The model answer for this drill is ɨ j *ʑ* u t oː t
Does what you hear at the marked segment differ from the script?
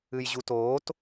no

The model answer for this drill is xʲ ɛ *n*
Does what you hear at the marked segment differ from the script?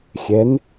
no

